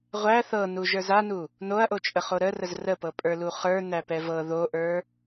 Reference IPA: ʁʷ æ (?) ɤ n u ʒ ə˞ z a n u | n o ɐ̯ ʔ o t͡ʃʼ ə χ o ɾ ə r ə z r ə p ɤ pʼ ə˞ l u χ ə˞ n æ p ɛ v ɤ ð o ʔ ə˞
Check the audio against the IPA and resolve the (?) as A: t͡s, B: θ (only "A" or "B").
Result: B